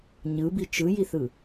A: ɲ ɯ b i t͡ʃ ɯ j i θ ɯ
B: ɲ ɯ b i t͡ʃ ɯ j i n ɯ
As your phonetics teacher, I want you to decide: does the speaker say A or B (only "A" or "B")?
A